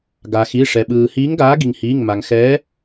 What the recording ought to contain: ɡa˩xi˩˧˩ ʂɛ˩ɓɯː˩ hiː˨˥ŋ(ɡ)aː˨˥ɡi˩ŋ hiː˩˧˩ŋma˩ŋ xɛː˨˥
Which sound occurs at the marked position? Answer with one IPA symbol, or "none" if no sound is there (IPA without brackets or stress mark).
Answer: ɡ